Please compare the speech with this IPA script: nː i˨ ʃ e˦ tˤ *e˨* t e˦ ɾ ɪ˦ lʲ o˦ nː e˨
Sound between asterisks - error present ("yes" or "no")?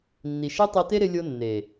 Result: yes